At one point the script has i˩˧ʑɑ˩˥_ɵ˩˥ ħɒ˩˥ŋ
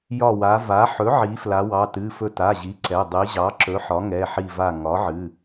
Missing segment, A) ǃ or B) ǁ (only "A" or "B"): B